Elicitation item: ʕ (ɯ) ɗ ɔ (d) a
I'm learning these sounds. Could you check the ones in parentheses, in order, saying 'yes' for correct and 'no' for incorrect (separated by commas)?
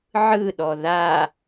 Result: yes, no